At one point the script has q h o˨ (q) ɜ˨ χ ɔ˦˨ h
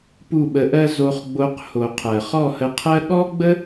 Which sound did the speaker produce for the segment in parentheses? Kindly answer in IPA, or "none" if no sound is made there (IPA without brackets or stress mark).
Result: qʰ